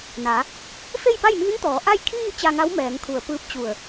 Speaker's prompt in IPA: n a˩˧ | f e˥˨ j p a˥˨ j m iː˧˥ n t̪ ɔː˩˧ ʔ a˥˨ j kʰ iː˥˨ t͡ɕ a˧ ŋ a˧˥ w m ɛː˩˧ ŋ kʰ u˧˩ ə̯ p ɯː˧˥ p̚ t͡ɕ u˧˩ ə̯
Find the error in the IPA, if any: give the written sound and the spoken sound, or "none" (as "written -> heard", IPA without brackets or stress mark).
none